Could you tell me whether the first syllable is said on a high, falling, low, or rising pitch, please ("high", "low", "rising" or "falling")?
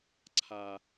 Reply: low